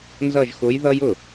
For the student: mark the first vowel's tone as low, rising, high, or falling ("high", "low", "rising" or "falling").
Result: falling